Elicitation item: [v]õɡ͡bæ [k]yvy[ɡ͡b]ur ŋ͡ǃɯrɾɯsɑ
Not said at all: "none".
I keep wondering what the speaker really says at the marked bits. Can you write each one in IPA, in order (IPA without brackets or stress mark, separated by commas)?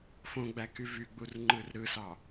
f, k, ɡ͡b